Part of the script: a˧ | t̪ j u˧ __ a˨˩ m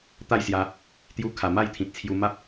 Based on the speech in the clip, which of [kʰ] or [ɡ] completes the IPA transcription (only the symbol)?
kʰ